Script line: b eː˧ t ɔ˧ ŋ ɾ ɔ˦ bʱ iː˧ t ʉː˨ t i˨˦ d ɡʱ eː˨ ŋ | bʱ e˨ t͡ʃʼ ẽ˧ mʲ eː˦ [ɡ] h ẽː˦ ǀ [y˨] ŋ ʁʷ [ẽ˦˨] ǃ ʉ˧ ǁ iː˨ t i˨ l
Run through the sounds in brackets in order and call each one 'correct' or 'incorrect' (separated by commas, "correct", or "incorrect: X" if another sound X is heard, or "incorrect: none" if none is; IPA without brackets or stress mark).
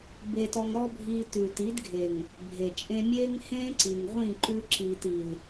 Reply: incorrect: ŋ, incorrect: i˨, incorrect: ĩ˦˨